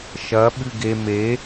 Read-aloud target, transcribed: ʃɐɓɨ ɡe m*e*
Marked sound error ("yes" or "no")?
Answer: no